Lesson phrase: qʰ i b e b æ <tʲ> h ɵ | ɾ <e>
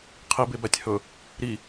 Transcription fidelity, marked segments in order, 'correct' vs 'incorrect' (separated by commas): correct, incorrect